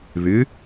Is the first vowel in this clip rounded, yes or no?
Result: no